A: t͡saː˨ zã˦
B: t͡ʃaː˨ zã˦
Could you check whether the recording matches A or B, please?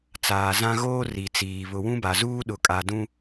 A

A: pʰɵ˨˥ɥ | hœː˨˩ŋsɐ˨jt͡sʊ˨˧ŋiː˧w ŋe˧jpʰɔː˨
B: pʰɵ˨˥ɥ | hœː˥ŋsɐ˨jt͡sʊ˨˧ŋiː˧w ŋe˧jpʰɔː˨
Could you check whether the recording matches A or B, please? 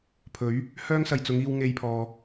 B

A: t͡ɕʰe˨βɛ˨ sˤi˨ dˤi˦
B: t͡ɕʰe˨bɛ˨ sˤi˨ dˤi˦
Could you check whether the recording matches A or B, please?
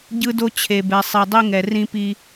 B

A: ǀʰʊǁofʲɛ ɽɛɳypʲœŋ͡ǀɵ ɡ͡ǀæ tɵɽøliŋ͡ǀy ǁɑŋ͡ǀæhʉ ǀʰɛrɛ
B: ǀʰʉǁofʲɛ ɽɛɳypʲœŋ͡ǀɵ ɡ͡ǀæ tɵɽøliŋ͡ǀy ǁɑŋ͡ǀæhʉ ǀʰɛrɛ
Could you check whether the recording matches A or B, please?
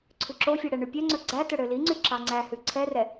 B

